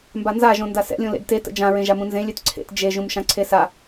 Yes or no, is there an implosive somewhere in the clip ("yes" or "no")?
no